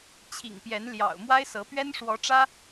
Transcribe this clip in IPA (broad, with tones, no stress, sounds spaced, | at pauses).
t͡ɕʰ ḭ˨˩ ŋ p j ɛ˨˦ n l j ɑ̰˨˩ ʊ̯ m w a˦ ɪ̯ s ɤ˨˦ p ɥ ɛ˦ n ʂ w ɔ˨˦ ʈ͡ʂ ä˦